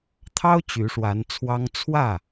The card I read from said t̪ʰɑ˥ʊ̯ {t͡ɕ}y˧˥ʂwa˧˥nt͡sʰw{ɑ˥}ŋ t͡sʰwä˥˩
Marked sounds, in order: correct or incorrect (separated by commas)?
correct, correct